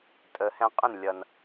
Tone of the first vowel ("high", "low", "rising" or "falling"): low